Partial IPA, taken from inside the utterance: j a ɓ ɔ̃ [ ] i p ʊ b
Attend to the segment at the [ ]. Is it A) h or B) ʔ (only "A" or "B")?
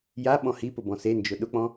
A